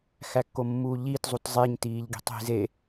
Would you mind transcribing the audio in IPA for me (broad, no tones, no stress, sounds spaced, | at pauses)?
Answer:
x æ kː o mː uː ʎ i t zˤ u t zˤ e ɲ t iː ʎ ɡ i̤ tˤ i̤ z e